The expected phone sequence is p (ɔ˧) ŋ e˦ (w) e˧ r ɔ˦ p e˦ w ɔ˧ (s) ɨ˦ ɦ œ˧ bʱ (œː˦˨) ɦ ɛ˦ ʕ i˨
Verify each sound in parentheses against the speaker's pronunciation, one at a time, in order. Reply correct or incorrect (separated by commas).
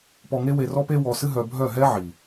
correct, correct, correct, incorrect